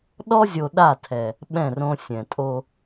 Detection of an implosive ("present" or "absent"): present